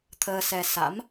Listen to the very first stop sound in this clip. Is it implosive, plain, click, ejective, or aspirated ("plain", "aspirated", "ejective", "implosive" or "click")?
aspirated